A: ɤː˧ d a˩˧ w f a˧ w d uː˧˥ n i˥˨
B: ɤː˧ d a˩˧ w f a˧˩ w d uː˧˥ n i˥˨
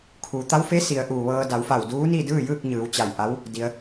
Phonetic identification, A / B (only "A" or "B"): B